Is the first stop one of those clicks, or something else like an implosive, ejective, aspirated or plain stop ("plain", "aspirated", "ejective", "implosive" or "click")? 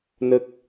plain